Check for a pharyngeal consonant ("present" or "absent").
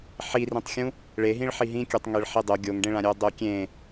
present